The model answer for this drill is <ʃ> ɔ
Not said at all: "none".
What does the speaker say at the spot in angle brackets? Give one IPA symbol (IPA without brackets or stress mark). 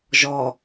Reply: ʒ